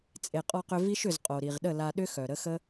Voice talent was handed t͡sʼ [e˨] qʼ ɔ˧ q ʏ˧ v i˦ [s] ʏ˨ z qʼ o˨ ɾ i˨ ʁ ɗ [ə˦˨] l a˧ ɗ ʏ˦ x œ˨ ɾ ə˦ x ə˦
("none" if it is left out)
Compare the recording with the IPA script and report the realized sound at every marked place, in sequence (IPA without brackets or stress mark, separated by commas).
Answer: e˨, ʃ, ə˦˨